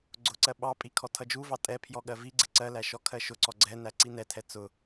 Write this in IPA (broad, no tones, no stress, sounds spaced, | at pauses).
ɡ͡ǀ ʊ ǀ ɜ ɓ ɑ pʼ i kʰ ɔ tʰ ʌ d͡ʒ u v ɑ tʼ ɛ pʰ j ɔ ɠ ɜ v i ɡ͡ǀ ɪ ǀ ɜ l æ ʃ ɔ kʰ ɜ ʃ ʊ ǀ ɔ ɡ͡ǀ ɛ n æ ǀ i n ɛ tʰ ɛ t͡s ʊ